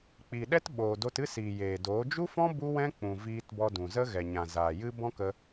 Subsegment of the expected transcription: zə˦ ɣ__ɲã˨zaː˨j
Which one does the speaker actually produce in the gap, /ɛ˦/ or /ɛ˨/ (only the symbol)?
ɛ˨